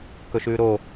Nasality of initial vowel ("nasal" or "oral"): oral